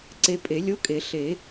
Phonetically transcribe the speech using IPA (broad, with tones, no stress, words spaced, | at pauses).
ǀe˧pʼe˨˩˦lʲo˧˥˧kʼe˨˩˦ ɬe˨˩˦